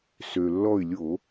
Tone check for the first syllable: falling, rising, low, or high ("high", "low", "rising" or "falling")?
low